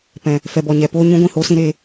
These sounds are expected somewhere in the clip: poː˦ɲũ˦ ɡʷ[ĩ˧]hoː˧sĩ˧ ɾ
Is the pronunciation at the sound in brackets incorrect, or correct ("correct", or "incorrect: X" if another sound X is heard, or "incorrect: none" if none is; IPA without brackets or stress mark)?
incorrect: ĩ˦˨